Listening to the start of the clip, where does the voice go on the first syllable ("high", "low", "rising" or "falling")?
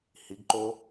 rising